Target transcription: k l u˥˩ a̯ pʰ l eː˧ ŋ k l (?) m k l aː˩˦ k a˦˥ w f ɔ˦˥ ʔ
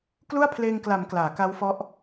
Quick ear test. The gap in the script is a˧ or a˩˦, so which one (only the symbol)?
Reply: a˩˦